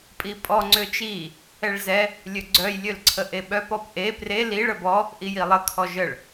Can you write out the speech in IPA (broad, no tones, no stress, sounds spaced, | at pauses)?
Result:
pʼ i pʼ ɔ ŋ͡ǀ ø t͡ʃ i | ɛ ɭ z ɛ | lʲ ø ɡ͡ǀ œ j lʲ ø l ǀʰ ə ʔ e ɓ œ p ɔ p ʔ e p r e l i ɭ ə b ɔ | ʔ i j i lˠ ə kʰ ɔ ʒ ə ɭ